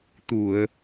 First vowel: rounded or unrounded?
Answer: rounded